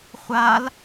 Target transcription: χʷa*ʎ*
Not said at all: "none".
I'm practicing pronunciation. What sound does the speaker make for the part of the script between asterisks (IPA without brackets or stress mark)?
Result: l